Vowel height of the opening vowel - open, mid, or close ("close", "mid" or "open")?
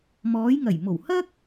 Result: mid